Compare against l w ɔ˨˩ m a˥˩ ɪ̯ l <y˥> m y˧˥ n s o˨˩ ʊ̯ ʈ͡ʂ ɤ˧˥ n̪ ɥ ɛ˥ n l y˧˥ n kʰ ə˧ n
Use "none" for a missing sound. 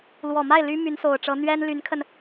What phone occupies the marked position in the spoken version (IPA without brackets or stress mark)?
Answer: y˥